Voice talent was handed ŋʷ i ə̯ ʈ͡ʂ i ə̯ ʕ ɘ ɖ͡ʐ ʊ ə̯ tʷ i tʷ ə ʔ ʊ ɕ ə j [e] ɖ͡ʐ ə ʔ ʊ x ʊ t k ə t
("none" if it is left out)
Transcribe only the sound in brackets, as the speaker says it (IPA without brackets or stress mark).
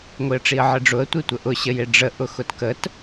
e